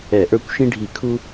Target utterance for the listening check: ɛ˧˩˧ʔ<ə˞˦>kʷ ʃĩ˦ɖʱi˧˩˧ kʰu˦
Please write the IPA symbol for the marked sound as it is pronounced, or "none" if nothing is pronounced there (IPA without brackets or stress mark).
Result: ə˞˦